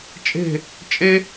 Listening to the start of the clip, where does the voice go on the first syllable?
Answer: falling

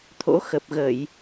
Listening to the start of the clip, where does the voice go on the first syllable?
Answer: rising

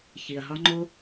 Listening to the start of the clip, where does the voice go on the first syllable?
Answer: low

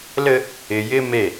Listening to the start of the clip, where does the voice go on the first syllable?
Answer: high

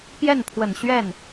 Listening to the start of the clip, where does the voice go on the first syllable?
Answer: falling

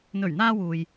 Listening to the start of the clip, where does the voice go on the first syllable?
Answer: low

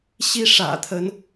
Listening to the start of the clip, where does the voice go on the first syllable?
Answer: high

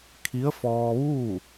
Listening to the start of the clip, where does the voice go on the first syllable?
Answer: rising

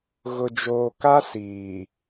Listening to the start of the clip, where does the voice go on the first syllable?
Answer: low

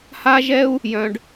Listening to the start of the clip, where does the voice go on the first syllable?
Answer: high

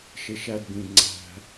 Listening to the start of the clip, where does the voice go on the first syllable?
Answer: high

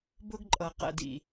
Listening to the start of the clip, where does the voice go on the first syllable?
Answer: high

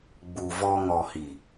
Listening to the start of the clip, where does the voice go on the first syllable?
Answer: low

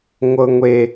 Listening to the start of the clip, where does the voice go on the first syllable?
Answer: high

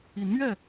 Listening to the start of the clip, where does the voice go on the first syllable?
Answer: rising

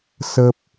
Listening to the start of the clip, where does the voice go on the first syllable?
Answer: high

